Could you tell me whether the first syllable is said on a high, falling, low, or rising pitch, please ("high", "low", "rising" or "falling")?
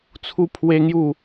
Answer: high